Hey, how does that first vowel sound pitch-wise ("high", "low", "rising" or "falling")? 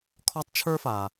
high